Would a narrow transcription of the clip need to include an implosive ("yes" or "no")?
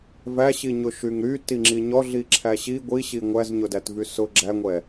no